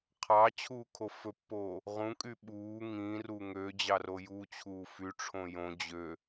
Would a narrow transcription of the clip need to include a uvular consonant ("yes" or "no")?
yes